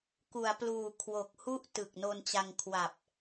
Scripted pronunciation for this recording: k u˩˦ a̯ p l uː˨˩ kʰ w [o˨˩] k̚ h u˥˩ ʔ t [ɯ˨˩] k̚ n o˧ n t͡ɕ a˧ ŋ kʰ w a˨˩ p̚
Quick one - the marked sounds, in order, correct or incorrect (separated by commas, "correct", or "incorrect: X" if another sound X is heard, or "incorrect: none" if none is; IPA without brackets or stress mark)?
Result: correct, correct